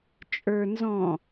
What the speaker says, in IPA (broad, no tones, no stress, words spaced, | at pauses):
t͡ʃʼə˞ nzɔ̃